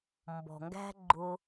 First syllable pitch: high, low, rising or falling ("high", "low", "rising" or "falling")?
low